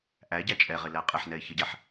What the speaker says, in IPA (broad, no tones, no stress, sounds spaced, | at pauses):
ʔ æ ɟ æ t͡ʃʼ ɛ ʁ ɪ l æ qʼ ɪ ħ n ɛ ɪ̯ ç ʌ ɟ æ ħ